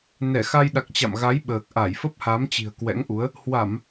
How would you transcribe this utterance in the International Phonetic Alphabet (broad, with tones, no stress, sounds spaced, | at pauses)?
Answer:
n ɛ˧˩ x a˧ j ɗ a˨˩ k̚ t͡ɕ a̰˧˨ m ɣ a˨˦ j ɓ əː˨˩ k̚ ʔ a˧˩ j f ə˦˥ p̚ h a˨˦ m t͡ɕ i̤˨˩ ə̯ k w ɛ̰˧˥ ŋ ʔ u˨˦ ə̯ | h w a˧˩˨ m